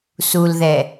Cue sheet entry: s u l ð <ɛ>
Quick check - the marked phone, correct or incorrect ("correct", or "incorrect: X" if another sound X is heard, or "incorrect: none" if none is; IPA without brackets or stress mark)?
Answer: correct